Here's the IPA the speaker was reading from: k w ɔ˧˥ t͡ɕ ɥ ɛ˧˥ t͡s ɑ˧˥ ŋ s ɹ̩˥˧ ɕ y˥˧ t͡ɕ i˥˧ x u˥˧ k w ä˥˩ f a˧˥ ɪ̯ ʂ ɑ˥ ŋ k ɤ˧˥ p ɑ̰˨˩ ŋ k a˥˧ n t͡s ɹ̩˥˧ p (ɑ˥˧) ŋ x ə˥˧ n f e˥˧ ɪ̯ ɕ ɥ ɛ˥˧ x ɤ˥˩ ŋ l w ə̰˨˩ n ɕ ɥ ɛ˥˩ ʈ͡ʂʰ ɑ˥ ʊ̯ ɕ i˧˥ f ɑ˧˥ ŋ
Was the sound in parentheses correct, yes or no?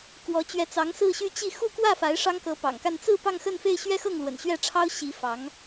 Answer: yes